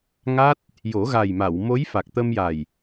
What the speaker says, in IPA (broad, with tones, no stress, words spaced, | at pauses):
ŋa˦˥t̚ | jo˨˩˦ɣa˨˩jma˨˩˨w mo˧˥j fa˨˩k̚t̪ə˧mja˨˩j